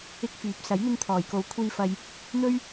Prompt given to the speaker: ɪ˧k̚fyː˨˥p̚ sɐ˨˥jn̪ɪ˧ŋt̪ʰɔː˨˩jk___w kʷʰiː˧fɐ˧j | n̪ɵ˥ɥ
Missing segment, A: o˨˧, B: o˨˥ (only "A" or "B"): A